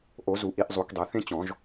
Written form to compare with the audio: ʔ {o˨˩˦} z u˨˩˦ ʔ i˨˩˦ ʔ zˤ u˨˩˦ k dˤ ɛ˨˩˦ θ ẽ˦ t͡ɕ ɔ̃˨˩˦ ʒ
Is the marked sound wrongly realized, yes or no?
no